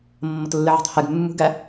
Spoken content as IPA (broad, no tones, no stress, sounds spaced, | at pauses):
mː ʌ t lː ɪ ʕ æ̤ tˤ h ɛ ɡ mː ṳ ɡ æ